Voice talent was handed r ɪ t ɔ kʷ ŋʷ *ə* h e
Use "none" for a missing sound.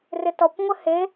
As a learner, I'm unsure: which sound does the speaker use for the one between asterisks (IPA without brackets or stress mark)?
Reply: ə